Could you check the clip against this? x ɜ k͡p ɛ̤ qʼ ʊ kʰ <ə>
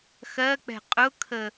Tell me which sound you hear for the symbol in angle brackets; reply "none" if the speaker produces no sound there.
ə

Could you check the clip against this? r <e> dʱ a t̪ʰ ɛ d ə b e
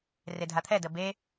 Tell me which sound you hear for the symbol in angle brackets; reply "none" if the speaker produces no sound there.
e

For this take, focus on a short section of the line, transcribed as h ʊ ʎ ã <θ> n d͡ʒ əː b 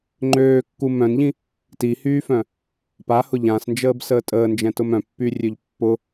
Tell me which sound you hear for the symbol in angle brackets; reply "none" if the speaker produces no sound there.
s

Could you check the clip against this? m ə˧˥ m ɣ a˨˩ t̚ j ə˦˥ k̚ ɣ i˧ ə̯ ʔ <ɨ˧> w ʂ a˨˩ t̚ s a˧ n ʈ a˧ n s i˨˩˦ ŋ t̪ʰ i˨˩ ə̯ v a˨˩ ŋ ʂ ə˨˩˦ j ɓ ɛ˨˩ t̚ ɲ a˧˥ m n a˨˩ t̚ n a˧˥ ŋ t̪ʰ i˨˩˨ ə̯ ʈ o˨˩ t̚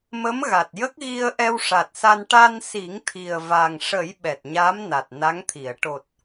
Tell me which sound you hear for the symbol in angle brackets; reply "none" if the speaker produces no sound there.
ɛ˧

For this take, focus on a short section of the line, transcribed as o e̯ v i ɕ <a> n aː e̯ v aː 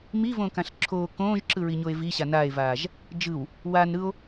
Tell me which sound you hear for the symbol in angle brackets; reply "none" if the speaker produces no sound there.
a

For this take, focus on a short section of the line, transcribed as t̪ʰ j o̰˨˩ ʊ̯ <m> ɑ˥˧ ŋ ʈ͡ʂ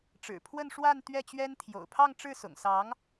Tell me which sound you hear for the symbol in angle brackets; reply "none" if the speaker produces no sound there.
pʰ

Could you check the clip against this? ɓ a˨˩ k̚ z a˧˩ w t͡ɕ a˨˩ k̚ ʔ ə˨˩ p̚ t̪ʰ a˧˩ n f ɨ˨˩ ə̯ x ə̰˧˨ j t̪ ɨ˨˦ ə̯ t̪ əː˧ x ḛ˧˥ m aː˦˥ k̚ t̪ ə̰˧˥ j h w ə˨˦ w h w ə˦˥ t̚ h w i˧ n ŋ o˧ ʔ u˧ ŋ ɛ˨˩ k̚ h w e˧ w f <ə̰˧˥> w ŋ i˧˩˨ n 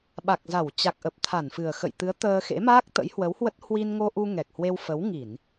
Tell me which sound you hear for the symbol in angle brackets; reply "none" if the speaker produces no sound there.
ə˨˦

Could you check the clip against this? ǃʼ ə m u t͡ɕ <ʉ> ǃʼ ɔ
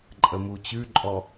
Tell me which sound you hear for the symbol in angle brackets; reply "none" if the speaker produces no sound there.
ʉ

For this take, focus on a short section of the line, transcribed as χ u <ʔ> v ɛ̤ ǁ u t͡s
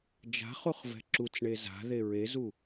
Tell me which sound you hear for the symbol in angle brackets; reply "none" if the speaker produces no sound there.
χ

